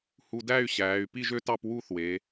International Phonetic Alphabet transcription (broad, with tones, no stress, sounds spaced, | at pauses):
h u˧ d æ˥˧ y̯ ɕ æː˩˧ y̯ p i˥˧ ʒ ø˥ t ɑ˥˧ p w uː˥˧ θ w eː˩˧